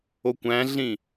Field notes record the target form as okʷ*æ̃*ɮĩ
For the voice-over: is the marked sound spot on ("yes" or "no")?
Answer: yes